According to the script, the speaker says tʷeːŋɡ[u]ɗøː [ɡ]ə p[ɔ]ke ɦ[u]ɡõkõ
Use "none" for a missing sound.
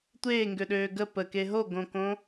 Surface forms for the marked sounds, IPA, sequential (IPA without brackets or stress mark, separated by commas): ø, ɡ, ə, o